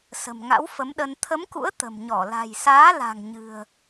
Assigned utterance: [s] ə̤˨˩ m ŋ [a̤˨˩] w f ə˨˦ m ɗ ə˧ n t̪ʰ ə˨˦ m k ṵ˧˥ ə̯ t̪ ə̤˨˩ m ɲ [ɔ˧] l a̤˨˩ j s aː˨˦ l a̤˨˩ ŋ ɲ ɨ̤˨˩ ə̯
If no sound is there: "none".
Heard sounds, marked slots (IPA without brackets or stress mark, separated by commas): s, a̰˧˥, ɔ˧˩